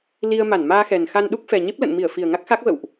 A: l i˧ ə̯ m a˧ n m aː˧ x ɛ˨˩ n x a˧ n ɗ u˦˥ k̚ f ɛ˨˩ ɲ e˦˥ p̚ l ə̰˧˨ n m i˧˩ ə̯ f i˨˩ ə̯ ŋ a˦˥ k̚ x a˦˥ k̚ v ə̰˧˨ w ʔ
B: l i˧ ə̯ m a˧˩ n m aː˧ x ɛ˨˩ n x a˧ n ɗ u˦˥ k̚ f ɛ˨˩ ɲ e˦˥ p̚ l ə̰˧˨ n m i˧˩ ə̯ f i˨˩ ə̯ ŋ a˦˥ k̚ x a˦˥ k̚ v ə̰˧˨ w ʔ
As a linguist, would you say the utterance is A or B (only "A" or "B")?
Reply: B